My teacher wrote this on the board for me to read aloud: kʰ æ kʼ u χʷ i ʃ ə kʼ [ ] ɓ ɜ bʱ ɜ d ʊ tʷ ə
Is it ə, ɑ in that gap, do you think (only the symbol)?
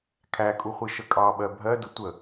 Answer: ɑ